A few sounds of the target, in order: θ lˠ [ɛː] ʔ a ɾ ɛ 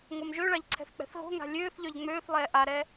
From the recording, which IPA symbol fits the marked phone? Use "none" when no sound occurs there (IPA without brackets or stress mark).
ɛː